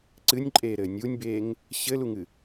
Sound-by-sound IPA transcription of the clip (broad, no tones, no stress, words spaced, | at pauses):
ǀɨnʲǃʼeːɾɘː nʲunʲbeːŋ | ɕɘluŋɨ